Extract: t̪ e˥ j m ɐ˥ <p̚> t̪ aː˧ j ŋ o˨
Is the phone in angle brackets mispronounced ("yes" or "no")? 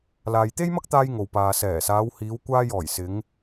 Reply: yes